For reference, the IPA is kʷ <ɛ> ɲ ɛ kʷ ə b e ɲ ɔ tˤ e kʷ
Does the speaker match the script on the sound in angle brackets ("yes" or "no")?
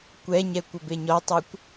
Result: yes